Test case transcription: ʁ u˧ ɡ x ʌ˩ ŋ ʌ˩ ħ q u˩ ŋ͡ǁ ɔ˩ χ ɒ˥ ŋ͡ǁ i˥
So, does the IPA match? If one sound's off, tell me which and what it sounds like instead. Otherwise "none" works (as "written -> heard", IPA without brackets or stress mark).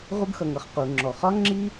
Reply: ħ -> χ